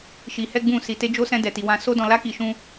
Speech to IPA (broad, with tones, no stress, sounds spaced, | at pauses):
ʃ i˧ h ɛ˦ ɡ͡b ũ˦˨ s i˧ t e˦ d͡ʒ o˦ s ɛ̃˦ d ɛ˧ t i˧ w ã˧ s o˦ d ɔ̃˧ l a˦ k i˧ ʃ ũ˦